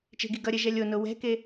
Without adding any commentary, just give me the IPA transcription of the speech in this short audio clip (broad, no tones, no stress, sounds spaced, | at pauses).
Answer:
t͡ʃ e̤ ɡ i ɡ ʌ ɾʲ ɛ ʒ ɛ lʲ o n o w ɛ̤ k e